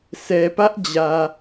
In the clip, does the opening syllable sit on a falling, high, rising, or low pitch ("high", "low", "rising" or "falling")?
low